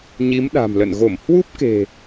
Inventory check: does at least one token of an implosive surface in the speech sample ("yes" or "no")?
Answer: yes